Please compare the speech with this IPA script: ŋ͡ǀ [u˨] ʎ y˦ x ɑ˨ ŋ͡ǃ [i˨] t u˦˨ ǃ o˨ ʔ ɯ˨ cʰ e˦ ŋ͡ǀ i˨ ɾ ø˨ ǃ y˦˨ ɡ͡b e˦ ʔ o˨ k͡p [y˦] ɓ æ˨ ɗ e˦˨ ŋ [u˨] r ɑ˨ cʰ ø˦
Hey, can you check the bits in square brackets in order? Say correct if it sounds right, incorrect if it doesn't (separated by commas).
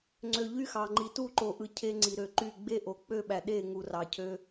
incorrect, correct, incorrect, correct